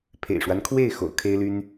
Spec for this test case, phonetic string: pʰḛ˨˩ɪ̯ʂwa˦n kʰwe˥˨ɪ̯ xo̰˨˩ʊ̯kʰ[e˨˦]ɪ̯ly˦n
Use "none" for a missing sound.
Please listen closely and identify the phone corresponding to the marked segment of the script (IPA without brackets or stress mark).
e˦